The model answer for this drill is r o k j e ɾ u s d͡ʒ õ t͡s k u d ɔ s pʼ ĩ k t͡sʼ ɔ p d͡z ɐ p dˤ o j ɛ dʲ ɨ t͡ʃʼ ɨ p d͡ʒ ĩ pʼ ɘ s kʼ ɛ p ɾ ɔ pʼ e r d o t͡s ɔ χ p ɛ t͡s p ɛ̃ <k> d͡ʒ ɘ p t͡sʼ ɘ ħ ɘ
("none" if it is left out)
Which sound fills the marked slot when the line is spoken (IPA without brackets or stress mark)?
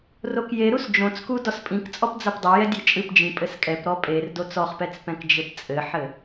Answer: k